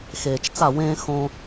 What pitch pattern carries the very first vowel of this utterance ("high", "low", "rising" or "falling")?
low